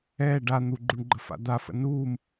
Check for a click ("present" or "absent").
present